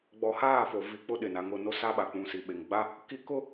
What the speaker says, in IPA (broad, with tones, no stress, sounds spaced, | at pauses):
ɡ͡b ɔ˨ h aː˦˨ f o˨ v i˨ k͡p ʊ˦ ɗ ɪ˨ n a˨ ŋ ʊ˦˨ n o˦ s a˦ ɓ a˨ k͡p ũ˨ s i˨ ɓ e˨ ŋ ɡ͡b a˦ | k i˦ k ʊ˦